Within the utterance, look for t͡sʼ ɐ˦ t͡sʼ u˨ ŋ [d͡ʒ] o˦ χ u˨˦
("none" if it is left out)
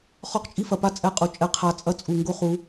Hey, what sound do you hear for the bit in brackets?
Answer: ɡ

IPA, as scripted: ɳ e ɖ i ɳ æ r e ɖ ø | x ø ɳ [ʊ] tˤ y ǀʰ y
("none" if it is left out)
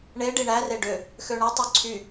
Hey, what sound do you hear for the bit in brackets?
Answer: ɯ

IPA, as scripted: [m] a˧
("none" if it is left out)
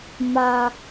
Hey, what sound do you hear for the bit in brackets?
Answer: m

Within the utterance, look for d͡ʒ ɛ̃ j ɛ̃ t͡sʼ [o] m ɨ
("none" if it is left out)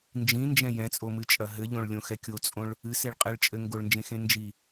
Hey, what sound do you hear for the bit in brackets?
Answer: o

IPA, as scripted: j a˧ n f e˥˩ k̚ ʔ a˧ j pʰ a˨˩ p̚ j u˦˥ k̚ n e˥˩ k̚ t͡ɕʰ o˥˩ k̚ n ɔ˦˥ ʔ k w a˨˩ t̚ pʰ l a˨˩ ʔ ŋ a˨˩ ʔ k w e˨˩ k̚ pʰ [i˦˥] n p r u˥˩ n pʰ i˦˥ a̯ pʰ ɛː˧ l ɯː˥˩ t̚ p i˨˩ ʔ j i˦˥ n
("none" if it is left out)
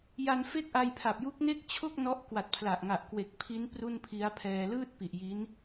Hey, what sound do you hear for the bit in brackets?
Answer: i˦˥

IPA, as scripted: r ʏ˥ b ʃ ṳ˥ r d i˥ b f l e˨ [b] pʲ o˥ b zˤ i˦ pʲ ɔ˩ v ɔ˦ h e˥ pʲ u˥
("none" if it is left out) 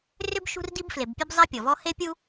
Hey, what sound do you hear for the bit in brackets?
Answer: b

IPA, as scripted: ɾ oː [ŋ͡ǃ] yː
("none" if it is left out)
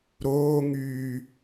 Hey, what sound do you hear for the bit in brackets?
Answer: ŋ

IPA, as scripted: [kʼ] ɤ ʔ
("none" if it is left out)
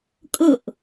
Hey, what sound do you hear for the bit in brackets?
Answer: kʼ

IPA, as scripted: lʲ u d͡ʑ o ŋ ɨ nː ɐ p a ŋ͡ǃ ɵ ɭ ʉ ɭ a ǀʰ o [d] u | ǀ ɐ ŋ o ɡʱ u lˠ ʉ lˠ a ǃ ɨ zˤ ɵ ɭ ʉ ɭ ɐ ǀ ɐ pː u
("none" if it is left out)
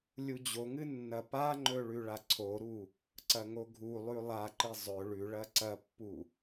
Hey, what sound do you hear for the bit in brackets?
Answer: ɾ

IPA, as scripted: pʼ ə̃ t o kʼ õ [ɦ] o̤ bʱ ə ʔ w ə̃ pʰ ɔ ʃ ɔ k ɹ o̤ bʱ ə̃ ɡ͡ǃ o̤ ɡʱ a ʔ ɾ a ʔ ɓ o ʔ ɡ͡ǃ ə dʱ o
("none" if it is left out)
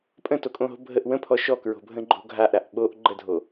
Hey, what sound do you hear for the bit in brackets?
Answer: ɦ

